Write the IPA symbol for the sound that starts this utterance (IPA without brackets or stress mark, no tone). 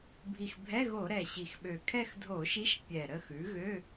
bʱ